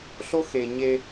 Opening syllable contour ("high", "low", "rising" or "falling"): high